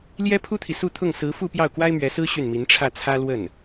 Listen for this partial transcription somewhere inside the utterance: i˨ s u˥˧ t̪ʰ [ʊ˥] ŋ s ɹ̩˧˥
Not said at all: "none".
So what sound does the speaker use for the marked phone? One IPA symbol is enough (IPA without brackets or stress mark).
ʊ˥˩